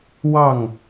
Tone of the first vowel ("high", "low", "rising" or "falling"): falling